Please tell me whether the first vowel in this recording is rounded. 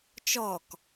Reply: yes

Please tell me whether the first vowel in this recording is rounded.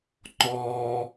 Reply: yes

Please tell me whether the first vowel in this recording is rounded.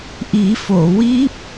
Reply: no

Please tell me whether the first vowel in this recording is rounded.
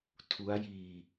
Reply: yes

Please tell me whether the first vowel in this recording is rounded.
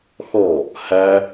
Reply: yes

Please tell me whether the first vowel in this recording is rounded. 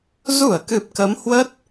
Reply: yes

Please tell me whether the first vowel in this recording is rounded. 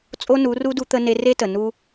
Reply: yes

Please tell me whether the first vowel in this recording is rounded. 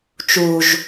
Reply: yes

